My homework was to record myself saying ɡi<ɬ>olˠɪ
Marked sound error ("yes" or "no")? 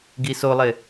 yes